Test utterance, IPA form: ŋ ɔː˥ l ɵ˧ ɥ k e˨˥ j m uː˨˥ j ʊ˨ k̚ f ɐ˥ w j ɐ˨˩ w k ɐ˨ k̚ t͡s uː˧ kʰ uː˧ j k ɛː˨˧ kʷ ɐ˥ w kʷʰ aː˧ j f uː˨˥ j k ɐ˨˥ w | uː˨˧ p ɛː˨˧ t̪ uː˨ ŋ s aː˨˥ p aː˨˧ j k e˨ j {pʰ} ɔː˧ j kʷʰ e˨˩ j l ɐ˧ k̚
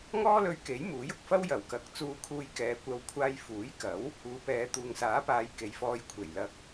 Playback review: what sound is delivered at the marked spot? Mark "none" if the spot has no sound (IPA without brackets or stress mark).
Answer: f